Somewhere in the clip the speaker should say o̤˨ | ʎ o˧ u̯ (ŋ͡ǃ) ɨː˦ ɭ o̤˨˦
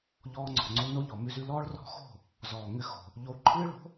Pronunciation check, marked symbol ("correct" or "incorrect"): incorrect